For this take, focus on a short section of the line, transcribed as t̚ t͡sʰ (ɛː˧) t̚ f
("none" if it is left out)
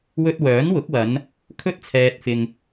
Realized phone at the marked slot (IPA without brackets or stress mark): ɛː˧